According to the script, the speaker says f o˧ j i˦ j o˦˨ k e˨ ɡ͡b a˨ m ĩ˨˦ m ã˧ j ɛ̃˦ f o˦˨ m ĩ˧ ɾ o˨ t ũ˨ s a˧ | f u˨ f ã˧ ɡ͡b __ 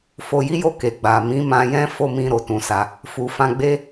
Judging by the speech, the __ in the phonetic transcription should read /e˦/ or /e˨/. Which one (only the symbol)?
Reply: e˦